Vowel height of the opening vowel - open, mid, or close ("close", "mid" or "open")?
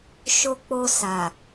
mid